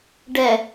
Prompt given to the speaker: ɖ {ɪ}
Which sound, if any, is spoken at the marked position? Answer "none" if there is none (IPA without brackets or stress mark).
ɛ